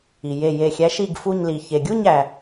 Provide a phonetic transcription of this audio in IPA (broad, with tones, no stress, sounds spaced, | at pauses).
i˩ j e˧˩ j e˧˩ xʲ æ˩˥ ʃ i˧˩ ɡ f u˧˩ ɲ l i˩ ç e˩ ɡʲ u˥˨ ɲ æ˩